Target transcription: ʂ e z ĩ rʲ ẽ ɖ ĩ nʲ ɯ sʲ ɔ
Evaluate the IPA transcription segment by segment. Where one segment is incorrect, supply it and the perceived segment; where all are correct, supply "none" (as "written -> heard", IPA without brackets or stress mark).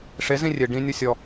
ẽ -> e